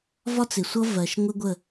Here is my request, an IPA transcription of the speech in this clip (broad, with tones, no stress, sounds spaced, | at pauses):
v ɒ˦ t͡s ɪ˨ sʷ ʌ˦ v ɜ˨ ʃ ŋʷ ɪ˦ ɡʷ ə˦˨